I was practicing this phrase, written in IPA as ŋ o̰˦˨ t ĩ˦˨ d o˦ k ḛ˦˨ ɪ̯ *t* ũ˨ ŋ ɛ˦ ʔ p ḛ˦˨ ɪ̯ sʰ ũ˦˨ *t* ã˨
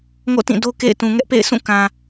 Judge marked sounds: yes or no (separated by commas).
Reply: yes, no